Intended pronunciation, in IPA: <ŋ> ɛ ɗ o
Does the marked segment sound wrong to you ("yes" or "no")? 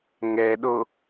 no